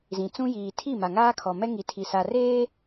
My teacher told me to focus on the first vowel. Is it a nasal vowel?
yes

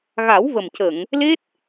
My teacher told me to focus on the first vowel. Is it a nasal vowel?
no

